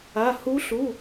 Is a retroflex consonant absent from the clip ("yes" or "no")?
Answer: yes